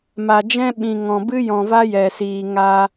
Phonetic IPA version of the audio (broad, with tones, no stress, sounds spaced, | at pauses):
m a˨ d͡ʒ ɛ̃˦ ɓ ĩ˨ ŋ ɔ̃˨ b ɨ˦ j ɔ̃˨ v a˦ j ɛ˨ s iː˨ ŋ a˧